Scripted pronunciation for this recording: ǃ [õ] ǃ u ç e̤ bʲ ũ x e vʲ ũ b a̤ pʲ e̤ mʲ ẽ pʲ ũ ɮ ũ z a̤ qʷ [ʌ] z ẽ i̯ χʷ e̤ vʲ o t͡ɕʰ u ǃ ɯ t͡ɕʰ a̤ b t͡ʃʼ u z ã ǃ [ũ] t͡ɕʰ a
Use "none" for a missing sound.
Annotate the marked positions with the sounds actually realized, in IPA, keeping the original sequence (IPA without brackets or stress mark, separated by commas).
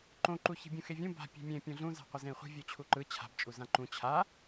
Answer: õ, ʌ, ũ